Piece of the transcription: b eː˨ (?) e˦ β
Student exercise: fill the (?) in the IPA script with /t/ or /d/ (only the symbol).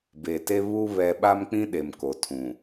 t